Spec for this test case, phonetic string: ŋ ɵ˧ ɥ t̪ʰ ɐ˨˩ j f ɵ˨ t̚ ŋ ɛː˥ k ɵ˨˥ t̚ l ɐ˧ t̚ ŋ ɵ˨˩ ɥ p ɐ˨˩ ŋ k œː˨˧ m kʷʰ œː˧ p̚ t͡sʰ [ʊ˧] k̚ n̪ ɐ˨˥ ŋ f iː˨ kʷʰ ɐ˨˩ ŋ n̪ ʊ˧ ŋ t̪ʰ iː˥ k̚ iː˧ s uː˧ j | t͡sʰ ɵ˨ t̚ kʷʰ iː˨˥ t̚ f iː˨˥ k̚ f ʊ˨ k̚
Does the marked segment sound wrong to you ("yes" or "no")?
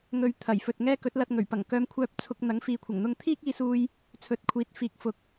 no